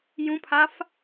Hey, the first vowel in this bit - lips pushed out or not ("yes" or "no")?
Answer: yes